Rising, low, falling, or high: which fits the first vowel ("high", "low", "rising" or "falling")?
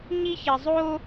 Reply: high